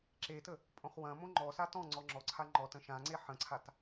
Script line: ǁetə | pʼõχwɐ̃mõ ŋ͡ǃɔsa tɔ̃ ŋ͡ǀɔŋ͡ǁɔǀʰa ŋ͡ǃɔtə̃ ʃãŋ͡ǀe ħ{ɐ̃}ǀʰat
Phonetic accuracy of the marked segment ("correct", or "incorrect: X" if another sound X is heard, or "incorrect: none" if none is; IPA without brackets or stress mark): incorrect: ə̃